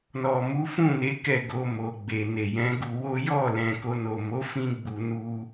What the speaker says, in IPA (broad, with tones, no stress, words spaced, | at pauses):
nɔ˨mu˨˦fũ˦˨ne˨˦ kɛ˦˨ɡo˧mo˨ɡ͡be˨ ne˨jɛ̃˨˦ɡu˧wo˦ jɔ˦˨ lɛ̃˨ko˧no˨mo˨˦ fĩ˦ɡ͡bu˧nu˦